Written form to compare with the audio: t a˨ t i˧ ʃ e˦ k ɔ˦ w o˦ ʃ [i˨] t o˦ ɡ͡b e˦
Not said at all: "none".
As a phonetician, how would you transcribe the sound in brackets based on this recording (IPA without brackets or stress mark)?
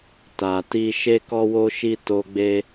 i˦